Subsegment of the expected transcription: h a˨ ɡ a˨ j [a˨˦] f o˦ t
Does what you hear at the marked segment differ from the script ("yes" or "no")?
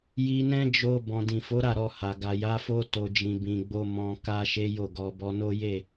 no